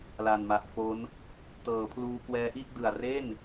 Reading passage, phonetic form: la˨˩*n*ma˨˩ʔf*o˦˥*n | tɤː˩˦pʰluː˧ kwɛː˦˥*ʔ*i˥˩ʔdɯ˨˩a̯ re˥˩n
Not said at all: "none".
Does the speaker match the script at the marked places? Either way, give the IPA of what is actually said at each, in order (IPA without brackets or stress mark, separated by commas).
n, o˦˥, ʔ